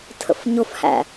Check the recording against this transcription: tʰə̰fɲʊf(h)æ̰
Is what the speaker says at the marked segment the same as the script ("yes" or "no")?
yes